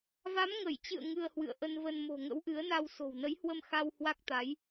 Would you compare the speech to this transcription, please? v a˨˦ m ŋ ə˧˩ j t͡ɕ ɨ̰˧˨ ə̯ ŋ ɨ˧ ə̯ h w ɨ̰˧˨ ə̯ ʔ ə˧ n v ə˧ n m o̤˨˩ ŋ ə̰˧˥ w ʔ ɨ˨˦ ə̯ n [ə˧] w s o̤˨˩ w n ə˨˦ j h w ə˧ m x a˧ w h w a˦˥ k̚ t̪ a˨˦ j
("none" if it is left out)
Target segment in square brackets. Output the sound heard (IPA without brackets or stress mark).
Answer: a˧